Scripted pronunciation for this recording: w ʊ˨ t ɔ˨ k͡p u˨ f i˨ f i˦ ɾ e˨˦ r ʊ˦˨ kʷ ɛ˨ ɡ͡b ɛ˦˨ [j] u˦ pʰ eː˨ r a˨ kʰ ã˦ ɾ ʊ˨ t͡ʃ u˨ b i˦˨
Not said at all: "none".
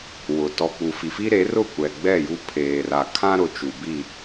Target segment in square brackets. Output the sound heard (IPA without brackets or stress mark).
j